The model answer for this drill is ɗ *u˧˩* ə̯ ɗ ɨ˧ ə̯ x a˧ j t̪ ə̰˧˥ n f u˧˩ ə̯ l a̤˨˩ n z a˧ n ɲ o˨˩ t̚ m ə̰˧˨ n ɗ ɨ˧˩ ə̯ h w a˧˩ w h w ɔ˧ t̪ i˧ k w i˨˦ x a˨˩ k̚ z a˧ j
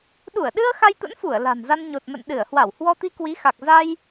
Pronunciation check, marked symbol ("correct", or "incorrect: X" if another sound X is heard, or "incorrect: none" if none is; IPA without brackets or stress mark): correct